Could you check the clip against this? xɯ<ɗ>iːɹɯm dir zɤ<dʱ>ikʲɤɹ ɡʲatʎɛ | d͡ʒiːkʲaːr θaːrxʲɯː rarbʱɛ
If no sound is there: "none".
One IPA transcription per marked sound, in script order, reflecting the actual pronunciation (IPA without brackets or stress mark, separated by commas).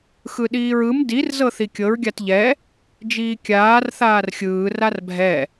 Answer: ɗ, θ